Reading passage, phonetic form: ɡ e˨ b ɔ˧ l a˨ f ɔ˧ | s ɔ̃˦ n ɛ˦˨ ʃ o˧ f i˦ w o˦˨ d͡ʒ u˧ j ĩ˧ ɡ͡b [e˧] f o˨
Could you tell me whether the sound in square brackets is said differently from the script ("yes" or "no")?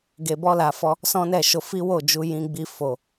yes